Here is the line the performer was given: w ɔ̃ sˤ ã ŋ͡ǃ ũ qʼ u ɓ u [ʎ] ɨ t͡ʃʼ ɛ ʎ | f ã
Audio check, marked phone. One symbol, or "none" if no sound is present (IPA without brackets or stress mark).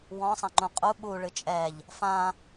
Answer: ɭ